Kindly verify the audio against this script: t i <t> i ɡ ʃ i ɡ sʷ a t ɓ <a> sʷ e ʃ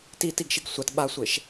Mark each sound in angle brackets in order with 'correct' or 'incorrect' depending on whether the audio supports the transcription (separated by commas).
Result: correct, correct